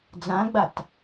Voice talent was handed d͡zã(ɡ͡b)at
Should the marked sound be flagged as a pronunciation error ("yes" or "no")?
no